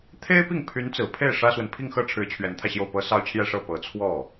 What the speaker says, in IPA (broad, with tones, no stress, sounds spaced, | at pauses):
t̪ʰ e˥ ɪ̯ p i˥˩ ŋ pʰ y˧˥ n t͡s ɹ̩˨˩ pʰ e˥˩ ɪ̯ ʂ ä˥ s w ə˨ n pʰ i˥˧ ŋ x ɤ˥˩ ʈ͡ʂʰ ɻ̩˧˥ t͡ɕʰ ɥ ɛ˧˥ n t̪ʰ ä˧ ɕ j o˥˩ ʊ̯ p ɤ˥ s ɑ˥ ʊ̯ t͡ɕʰ j ɛ˥˧ ʂ ɤ˥˩ p ɤ˧˥ t͡sʰ w ɔ˥˩